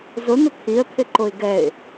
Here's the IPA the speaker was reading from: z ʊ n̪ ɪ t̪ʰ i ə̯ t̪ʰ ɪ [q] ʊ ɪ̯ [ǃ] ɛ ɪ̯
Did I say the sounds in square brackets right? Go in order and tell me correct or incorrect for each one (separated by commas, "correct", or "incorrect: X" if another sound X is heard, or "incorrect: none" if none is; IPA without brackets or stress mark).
incorrect: ǃ, incorrect: ɡ